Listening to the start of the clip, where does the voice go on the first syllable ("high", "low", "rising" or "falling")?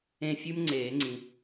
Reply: falling